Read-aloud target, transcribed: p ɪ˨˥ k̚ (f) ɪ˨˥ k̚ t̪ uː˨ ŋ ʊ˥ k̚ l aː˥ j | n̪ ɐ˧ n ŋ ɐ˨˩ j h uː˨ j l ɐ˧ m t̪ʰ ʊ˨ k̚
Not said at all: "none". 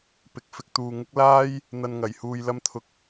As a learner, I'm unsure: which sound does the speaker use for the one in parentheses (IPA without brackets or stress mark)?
f